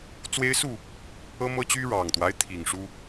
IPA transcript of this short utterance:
t͡swe˦ɪ̯su˥˨ | ɤ˦mɤ˦ t͡ɕy˦ɻɑ˨˩ŋt̪wa˦ɪ̯ t̪ʰi˨˩ŋ ʂu˦

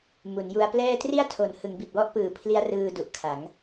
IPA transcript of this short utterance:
mu˩˦nju˧a̯plɛː˥˩ tri˥˩a̯tʰo˨˩n hɯ˩˦ŋbi˨˩t̚wɔ˥˩ʔpɯː˨˩ pʰli˦˥a̯rɯː˧ du˨˩ʔkʰa˩˦ŋ

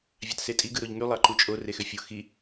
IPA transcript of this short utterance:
vʲɑtsetʼi ɡɯɾoʎŋy lˠɑǃut͡ʃʼo rexøfʲo xi

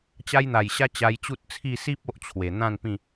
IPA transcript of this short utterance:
t͡ɕa˦jn̪a˨˩jɕa˦ t͡ɕa˧jt͡ɕu˦t̚t͡sʰi˥˧ si˦p̚ o˦ʔt͡ɕʰwe˨˩ n̪ã˥˧npĩ˥˧

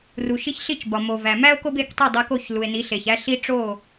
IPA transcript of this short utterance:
ru˩ʃi˧ç ɬi˥˩t͡ʃbɒ˩mo˩ væ˩mæ˥o̯ ko˥be˥˩ktˤi˥˩ dˤe˧ko˥˩çlu˩e̯ni˩˥ ɬe˩çæ˥ɬi˥ ʈ͡ʂo˥˩

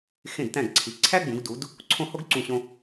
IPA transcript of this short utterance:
xẽ˧˩dtæ̃˧˩ɡǀʰi˩˧ ǀʰæ˥ ɡ͡bũ˩˧ɡdu˩˧d | ǀʰõ˧ ho˥ɡǀũ˧˩ɕõ˧

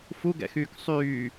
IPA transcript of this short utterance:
fuɡɛ̰xyːk sˤyː

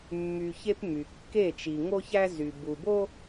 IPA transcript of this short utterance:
mːy˨ çe˦pmy˨ kːe˦˨t͡ʃi˨ ŋo˦çæ˦zy˨ bu˨bo˦

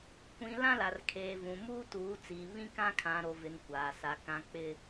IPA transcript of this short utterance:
kʷĩ˨ lã˦la˨rkʰeː˨vũ˨ muː˦tuː˨˦t͡siː˨ βĩ˦kã˦ kʰã˨ɾo˨vɪ˨n kʷaː˨sa˨ kã˨k͡pɪ˨

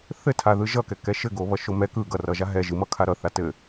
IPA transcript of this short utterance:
θɘtʰa ðɯʒʌkɛ kɛʃɘɡoβʌ ʃomɛ kɯ ɡʌrʌʒa ɦɛ ʒɯmʌ kʰaɾʌθa tɘ

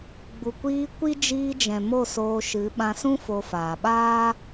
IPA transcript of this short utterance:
ɡ͡bu˨kʷiː˧ kʷi˦ d͡ʒiː˧d͡ʒɛ̃˨ mo˦˨soː˧ʃɨ˨˦ ɓã˧sũ˦ fo˧faː˨ ɓaː˦

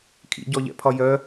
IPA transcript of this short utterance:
kʰḭɟɔʎɛ̰pʰɒ jœ

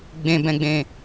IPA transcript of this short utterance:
ɡ͡bẽbɛ̃ɡ͡bẽ

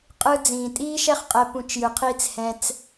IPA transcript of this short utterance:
qʼɯ˧ d͡zĩː˨tʼiː˦ʃɛ˦χ qʼɛ˧pũ˧t͡ʃ jɯ˨qʰiː˦t͡s hɛ̃˧t͡s

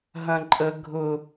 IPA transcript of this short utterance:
ɦɐ̃ǃʼə ɡʱʊ

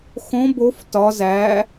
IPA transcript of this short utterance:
xõ bof tɒ zæ

